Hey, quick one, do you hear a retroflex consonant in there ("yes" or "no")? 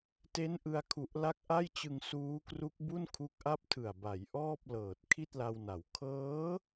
no